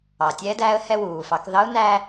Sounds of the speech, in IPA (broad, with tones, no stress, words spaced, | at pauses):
ɑ˩tʲɛ˧˥dæ˧˥ə̯ hɛ˧wuː˩fɑ˩˧k ðɑ˧˥ʊ̯ næ˥